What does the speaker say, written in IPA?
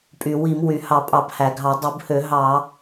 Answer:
pʼy˩wi˧˩˧m wy˩ hɑ˧˩˧pʼɑ˧˩˧bhæ˩ɡʱɑ˧˩˧ dˤu˧˩˧bhø˧˩˧ ɦɑ˧˩˧

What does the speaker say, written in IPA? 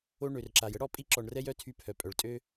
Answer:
o˧ ɳø˨rǁa˨j ə˦ɽɔ˧pʼi˧ǁɔ˨ɳ rɛ˦jœ˦tʰy˧ pʰœ˨pʼœ˨ɭtʼø˦

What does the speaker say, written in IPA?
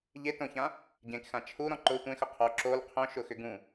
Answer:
ʎetõçã | ɟẽkxã t͡ʃʰuɾɔ̃ ǃʊ tʷẽxʊ qʰɔ ǁol qʰõʃʊxʏ ɡũ

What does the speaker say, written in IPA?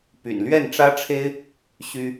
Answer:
py̰˨˩nlɥɛ˥˩nʈ͡ʂä˥ʈ͡ʂʰe˥ɪ̯ | ɕy˥

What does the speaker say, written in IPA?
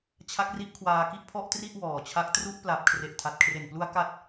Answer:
t͡ɕʰa˦˥k̚ri˦˥ʔ kʰwaː˧ki˥˩ʔpʰɔ˥˩ʔ tri˥˩ʔ wɔː˨˩t͡ɕʰa˦˥k̚ tru˦˥ʔpla˨˩p̚ kʰre˨˩ʔtʰa˨˩t̚kʰre˨˩nplu˦˥a̯ ka˥˩t̚

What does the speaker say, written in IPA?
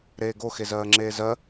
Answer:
ɾeːɡo xezɜːŋ͡ǁeːzɜ

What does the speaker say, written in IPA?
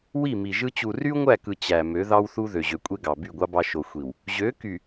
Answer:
wi˦˨mi˨ʒɯ˦ t͡ɕu˨ry˦u̯ŋʷæ˦˨kɯ˨ t͡ɕæ˨ mø˨˦ðɑ˦wθu˦ðø˨ ʑø˨kʷʼe˦ɡɑ˨ by˦˨ɡʷɑ˦bɑ˦ ʃo˨xʷi˨w | ʑø˨˦ ky˨

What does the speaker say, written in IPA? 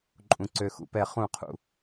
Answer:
ǃʼũ˩ǀø˩xṵ˩pɛ˧˩˧ χũ˧˩˧qʰṵ˩

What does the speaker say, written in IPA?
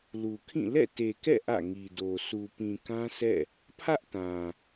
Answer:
lu˨kʰĩ˦˨ lɛ̰˦˨te˨kɛ̰˦˨ ʔä̰˦˨ŋi˨do˨ sʰu˨pĩ˨kã˦sɛ̰˦˨ | pʰä˦ʔtã˨

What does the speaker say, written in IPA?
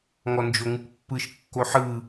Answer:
ŋɔnd͡ʒoŋɯkpːɯʃ kːoħɯ

